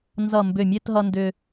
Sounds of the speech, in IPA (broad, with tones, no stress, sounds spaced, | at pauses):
n z ʌ˧˩ m b ʏ˧˩ mʲ e˥˧ t ɦ ʌ˧ n d ʏ˧